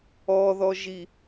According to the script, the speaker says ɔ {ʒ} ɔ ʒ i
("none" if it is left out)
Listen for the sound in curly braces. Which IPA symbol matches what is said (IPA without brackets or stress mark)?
ð